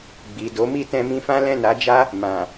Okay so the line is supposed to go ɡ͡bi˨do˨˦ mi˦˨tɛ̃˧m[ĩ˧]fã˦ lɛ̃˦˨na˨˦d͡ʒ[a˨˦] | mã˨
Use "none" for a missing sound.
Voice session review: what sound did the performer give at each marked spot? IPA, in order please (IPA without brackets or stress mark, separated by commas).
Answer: ĩ˧, a˦